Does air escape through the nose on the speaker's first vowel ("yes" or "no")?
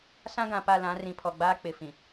yes